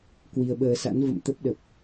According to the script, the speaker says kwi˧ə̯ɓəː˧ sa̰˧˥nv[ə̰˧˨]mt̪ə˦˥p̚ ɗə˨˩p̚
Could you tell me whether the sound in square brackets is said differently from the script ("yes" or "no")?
no